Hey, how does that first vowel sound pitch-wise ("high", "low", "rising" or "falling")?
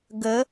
rising